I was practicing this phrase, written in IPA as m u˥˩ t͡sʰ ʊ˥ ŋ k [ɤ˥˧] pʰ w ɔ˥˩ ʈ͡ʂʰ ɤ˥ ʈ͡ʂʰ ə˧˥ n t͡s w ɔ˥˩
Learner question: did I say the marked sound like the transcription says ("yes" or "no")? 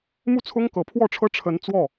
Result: no